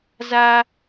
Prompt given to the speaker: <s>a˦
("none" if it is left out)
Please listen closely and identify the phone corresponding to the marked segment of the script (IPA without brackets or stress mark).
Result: z